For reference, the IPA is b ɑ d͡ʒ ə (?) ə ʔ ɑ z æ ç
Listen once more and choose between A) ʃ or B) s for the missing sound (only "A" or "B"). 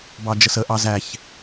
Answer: B